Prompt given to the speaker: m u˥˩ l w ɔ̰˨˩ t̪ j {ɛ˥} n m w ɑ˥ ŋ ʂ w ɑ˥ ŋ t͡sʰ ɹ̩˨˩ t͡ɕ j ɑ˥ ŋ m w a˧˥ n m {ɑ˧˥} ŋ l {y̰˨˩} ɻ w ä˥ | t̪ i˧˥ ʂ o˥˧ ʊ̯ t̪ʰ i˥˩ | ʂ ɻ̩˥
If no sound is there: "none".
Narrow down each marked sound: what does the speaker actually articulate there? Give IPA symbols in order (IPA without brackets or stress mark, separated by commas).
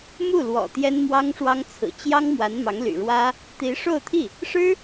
ɛ˥, ɑ˧˥, y̰˨˩